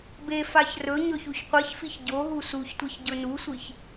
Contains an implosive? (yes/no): no